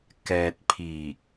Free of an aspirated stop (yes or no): no